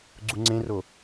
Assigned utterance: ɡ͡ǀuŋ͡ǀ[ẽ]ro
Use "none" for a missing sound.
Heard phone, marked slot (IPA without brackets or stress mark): ẽ